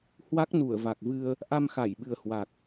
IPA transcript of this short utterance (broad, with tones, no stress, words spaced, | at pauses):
hwa˦˥k̚nu˧˩ə̯va˨˩k̚vɨ˧ə̯ | ʔa˧mxa˧˩jɓɨ˨˩ə̯hwa˨˩k̚